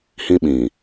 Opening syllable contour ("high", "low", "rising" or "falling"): high